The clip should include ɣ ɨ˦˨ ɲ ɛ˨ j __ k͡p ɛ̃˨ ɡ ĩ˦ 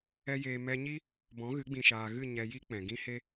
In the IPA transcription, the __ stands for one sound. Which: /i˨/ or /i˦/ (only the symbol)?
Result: i˦